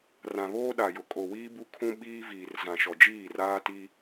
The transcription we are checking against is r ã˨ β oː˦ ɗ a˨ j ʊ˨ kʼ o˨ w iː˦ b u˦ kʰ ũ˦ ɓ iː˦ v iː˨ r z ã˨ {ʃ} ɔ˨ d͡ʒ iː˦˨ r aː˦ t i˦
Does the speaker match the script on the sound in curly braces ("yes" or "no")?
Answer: yes